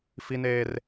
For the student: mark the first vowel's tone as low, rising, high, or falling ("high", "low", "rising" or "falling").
high